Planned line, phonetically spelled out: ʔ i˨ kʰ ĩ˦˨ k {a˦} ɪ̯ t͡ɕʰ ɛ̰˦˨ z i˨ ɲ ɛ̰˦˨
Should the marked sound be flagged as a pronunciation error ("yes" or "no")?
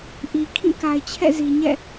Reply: yes